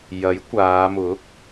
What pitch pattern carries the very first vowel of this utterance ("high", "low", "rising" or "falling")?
rising